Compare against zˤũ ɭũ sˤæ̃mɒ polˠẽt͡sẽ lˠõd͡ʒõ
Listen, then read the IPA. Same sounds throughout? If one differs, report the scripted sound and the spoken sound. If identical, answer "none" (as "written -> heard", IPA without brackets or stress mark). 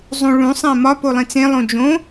none